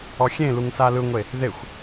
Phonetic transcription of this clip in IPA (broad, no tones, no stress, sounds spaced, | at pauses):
ɔ xʲ ẽ l u ŋ s a l ɯ ŋʷ e | ð e xʷ